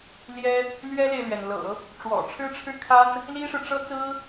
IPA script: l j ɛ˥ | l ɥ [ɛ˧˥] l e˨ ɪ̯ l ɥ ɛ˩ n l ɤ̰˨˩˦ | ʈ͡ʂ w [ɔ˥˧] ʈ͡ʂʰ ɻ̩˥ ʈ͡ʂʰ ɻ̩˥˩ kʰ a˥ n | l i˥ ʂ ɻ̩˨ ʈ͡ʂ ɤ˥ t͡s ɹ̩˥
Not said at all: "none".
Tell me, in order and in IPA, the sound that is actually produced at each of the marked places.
ɛ˥, ɔ̰˨˩

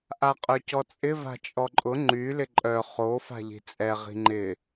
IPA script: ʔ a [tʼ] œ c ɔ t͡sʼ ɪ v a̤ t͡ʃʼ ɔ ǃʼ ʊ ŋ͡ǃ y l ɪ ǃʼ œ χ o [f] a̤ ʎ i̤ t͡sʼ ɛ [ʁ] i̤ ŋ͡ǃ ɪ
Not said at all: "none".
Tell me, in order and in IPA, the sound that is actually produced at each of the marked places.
qʼ, f, ʁ

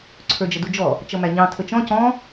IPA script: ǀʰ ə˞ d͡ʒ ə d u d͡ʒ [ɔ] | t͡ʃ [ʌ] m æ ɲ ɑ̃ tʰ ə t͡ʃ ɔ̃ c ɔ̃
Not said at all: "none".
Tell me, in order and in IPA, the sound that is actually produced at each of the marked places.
ɔ, ʌ

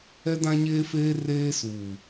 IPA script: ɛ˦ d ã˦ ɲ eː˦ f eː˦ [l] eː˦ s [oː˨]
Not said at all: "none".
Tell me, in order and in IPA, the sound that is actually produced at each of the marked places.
r, uː˨

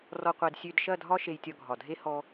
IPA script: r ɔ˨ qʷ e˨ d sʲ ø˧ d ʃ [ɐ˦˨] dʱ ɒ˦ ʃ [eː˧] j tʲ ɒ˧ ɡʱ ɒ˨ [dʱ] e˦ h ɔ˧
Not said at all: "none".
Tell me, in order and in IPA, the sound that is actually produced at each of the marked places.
ɐ˦˨, e˧, dʱ

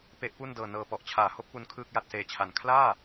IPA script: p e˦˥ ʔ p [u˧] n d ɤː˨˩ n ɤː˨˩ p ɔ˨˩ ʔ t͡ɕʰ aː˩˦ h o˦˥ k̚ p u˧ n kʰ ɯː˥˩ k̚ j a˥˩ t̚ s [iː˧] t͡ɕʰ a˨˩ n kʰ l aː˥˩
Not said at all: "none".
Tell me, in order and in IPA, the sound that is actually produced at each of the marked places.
u˥˩, eː˧

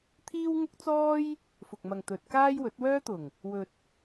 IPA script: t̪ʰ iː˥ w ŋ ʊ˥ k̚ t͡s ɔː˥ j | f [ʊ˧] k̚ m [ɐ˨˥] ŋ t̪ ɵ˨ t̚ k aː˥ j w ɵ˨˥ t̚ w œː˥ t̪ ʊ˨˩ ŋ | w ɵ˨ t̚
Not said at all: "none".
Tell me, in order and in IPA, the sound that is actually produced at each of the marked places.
ʊ˨, ɐ˨

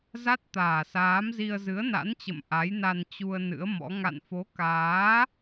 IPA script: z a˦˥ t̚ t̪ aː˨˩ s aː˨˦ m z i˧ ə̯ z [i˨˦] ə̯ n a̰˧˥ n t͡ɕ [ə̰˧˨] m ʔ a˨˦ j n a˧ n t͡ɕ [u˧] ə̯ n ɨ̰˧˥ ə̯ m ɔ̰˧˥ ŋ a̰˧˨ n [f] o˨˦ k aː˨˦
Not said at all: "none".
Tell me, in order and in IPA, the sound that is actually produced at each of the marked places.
ɨ˨˦, ə̰˧˨, u˧, f

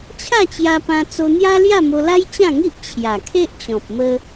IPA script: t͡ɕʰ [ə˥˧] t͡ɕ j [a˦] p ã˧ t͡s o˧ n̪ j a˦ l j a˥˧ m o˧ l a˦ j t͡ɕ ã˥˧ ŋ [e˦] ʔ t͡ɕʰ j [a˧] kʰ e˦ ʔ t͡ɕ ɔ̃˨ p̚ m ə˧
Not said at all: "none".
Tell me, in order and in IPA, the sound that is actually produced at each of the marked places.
a˥˧, a˧, i˦, a˨˩

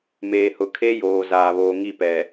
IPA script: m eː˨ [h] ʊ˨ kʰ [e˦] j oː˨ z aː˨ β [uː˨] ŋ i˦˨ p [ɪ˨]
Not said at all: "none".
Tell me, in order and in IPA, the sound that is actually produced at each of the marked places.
h, e˦, oː˨, ɛ˨

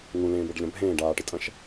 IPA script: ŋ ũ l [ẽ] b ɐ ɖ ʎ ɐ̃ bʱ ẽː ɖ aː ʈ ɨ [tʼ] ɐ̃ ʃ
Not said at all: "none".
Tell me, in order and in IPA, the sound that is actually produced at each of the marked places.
ẽː, tʼ

